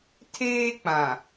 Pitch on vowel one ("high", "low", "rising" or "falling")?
high